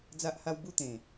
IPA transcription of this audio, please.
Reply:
d͡z a˦ ʔ h a˦ w b u˥˧ t̪ ẽ˨˩

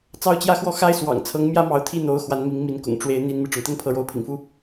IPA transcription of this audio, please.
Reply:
t͡s ɑ˥˧ ʊ̯ t͡ɕ j ä˥˧ x w ɔ˥˩ x a˥ ɪ̯ s w ɑ̰˨˩ ŋ t͡sʰ ɤ˧˥ ŋ m j ä˥ m ɑ˧˥ ʊ̯ t̪ʰ i˥˩ n̪ o˧˥ ʊ̯ x w a˧˥ n m i˧˥ ŋ m i˧˥ n k ʊ̰˨˩ ŋ ʈ͡ʂ w e˧˥ ɪ̯ n̪ i˥ n m i˥˩ ʈ͡ʂ ʊ˩ ŋ t̪ ə˥ n pʰ ɤ˧˥ ɻ o˧˥ ʊ̯ pʰ ḭ˨˩ ŋ f u˥

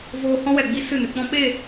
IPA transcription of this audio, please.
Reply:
v oː˧ h ɔ̃˦ w ɛ˨ ɡ͡b i˦ s ɨ˦˨ n ɨ˧ k͡p ɔ̃˦ ɓ e˦˨

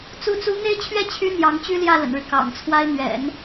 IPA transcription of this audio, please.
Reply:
t͡s u˧˥ t͡s u˧˥ n̪ e˥ ɪ̯ t͡ɕʰ ɥ ɛ˥˩ t͡ɕʰ y˥ n̪ j ɑ˧˥ ŋ t͡ɕ y˥ l j ä˥˩ l ə̰˨˩ n ɻ ɻ̩˦ k ɑ̰˨˩ ŋ t͡sʰ w a˥ ɪ̯ n̪ ɥ ɛ̰˨˩˦ n

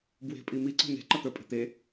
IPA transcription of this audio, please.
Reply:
b w e̤ pʼ i m i ǀ ɔ̤ n̪ e̤ ǃ ɒ t̪ ə˞ pʼ e̤ t̪ e

